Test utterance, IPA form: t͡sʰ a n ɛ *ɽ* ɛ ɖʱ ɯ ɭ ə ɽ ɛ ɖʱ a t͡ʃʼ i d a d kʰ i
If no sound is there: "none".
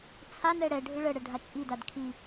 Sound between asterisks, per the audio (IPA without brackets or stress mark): ɽ